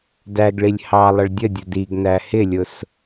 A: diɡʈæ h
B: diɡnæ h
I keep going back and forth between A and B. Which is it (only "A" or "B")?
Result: B